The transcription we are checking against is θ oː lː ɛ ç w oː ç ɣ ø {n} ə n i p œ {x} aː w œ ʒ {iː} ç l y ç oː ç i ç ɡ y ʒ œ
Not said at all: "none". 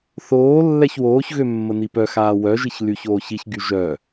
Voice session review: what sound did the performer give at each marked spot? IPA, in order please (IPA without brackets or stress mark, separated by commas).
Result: mː, x, i